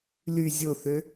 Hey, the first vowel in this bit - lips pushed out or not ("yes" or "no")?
yes